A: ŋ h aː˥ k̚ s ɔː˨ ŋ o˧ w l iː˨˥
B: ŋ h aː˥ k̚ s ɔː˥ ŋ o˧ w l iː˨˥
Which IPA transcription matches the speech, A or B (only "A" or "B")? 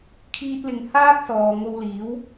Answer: A